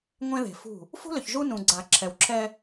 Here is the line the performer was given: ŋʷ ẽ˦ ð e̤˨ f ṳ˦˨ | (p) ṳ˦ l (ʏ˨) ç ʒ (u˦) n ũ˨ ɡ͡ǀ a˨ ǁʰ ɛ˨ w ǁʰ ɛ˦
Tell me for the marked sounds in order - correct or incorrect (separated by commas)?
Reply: incorrect, correct, correct